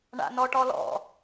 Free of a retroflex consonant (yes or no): no